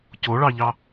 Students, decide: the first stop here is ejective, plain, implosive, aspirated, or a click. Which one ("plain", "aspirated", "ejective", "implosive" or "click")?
plain